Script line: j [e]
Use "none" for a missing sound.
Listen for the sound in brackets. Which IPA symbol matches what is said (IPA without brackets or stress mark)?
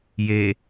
e